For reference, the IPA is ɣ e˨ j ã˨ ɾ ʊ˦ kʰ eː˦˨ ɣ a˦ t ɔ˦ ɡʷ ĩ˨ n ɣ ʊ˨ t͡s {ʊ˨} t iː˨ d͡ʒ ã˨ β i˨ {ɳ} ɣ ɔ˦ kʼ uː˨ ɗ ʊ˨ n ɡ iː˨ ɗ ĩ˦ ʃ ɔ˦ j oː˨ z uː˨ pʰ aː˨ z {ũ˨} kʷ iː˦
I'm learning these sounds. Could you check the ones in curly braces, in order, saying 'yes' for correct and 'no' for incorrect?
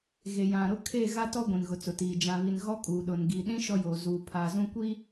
yes, no, no

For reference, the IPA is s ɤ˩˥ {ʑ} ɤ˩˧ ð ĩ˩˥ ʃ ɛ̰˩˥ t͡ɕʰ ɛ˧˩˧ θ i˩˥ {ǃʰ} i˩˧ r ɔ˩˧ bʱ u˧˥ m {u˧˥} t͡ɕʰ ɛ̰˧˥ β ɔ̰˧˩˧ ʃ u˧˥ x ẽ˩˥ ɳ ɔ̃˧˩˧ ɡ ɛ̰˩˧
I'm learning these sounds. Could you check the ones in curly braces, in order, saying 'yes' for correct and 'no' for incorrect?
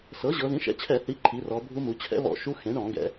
yes, yes, no

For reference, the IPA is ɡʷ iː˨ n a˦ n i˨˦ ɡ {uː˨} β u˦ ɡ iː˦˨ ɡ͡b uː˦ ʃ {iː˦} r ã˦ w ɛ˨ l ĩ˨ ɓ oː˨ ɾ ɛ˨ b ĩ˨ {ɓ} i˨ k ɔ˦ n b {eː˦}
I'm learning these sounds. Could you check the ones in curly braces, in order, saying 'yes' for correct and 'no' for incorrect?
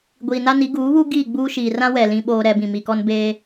no, no, no, yes

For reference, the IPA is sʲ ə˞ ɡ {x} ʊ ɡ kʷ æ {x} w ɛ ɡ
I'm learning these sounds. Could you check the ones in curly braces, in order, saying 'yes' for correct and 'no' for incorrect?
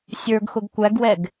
yes, no

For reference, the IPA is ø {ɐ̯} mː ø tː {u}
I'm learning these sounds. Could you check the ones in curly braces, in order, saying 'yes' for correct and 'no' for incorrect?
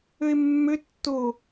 no, no

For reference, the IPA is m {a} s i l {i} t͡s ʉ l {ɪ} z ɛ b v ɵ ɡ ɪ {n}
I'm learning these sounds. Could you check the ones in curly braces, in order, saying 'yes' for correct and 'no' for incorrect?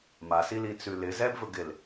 yes, yes, yes, no

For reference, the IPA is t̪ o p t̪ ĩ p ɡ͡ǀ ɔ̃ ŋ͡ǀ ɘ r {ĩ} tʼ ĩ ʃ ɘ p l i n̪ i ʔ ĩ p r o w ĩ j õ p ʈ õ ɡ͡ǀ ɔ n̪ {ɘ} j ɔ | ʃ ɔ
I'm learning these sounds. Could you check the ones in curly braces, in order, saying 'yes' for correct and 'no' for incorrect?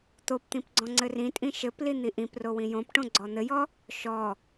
yes, yes

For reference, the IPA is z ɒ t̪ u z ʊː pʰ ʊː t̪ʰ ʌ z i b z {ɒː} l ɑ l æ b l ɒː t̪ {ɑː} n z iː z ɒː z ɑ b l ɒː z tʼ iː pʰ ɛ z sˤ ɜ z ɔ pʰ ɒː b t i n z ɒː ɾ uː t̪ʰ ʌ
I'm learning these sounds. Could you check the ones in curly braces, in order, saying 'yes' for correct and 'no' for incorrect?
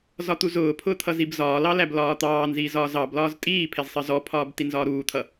yes, yes

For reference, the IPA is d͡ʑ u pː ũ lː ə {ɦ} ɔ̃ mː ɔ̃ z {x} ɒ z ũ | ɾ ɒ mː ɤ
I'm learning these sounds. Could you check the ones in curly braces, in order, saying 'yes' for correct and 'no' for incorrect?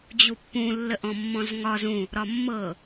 no, no

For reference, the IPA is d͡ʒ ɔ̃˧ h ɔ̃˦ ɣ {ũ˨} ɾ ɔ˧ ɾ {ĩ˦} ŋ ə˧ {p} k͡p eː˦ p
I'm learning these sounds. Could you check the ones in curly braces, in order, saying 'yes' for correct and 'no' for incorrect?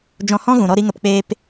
yes, no, yes

